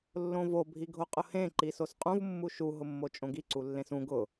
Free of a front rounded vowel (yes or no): yes